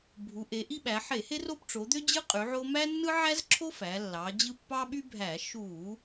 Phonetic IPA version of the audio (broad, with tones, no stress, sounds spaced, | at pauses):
bʱ u˩˧ ʔ e˩˧ ʔ i˦ ɓ æ˩˧ ħ e˧˩˧ h e˦ r o˦ p ʈ͡ʂ o˩˧ d̪ ø˦ d͡ʑ ɯ˦ qʼ y˩˧ ʕ o˦ m æ˦ nː ɯ˦ ʕ æ˦ z ǁʰ o˦ f æ˩˧ lː ɑ˩˧ d͡ʑ ɯ˦ pː ɑ˦ ɓ y˦ bʱ æ˧˩˧ ʃ u˧˩˧